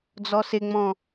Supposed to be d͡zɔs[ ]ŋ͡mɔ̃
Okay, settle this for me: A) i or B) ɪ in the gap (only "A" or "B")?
B